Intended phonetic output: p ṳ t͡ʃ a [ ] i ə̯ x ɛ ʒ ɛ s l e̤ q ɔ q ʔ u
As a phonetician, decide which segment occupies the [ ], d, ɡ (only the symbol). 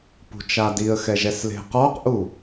d